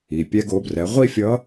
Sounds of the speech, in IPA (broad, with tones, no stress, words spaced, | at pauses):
i˩pʲɛ˧ɡ o˩˧brɛ˩˧ ʁʷi˥fʲʌ˧˥